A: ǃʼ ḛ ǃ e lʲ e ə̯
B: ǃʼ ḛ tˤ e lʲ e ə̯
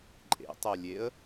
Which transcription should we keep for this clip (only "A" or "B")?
B